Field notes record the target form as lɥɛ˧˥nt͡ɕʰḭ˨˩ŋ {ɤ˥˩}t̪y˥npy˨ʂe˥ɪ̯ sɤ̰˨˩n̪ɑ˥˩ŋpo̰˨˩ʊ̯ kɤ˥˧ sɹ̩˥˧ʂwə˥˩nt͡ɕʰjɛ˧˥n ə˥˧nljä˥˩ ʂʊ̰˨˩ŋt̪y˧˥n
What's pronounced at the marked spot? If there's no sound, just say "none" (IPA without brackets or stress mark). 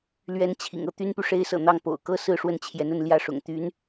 ɤ˥